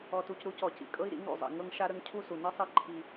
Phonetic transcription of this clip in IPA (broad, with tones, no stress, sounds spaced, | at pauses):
ɔ˨ t u˨ c ɾ u˦ c ɔ˨ c ḭ˨ kʼ ɤ˦ i̯ ɾ ḭ˨˦ ŋ ɾ ṵ˨ zˤ ḭ˨ ŋ ɤ˦ ŋ ʃ a˦ ɾ ə˦ ŋ cʰ u˦ s u˨ n i˦ sˤ i˦ ǃʰ i˦